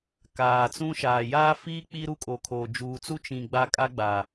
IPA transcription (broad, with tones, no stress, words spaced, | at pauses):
kaː˨t͡sũ˦ʃaː˨ jaː˦fiː˦ k͡pi˦ɾu˦kʼo˨kʰoː˨ d͡ʒuː˨t͡su˦ t͡ʃĩ˨ ɡ͡ba˦kʼa˦ɡ͡ba˨